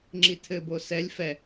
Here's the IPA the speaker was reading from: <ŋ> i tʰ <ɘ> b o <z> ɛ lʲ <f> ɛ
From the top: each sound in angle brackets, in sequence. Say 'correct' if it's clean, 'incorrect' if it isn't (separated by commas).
incorrect, correct, incorrect, correct